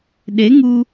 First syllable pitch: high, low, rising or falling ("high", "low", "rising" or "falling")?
rising